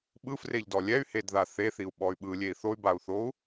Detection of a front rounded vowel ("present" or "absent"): present